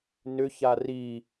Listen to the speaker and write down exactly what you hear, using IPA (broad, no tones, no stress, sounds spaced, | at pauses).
n ʏ ç a r i